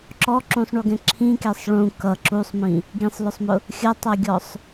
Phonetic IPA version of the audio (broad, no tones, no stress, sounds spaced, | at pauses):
ǁ ɔ ǁ ũ sˤ ɳ u ɡ ɛ̃ ǁʰ ĩ k ɛ sˤ ɭ ũ k ʌ ǁ u sˤ m ĩ | ɡ ĩ sˤ l ʊ sˤ m ʊ | xʲ ʌ tˤ ʌ ɡʲ ɔ sˤ